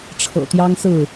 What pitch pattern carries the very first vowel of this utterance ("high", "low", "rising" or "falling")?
low